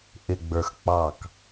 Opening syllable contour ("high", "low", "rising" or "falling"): low